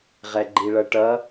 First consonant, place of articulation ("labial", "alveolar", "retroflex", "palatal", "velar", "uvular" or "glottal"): uvular